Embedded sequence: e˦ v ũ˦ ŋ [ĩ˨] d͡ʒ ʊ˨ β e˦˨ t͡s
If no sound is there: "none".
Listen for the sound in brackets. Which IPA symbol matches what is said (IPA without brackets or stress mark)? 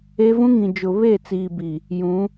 ĩ˨